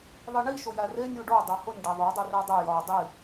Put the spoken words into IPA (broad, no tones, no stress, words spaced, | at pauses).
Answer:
ðˤiɳi ʃʊjære nʲuɖo dˤohʊnʲ ɖaðˤo dˤurædˤe jɒ dˤi